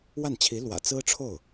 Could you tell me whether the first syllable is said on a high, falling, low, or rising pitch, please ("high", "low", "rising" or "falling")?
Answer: falling